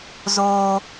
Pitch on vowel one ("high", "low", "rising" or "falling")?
high